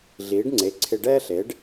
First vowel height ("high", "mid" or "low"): high